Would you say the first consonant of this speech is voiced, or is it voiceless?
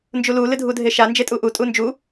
voiced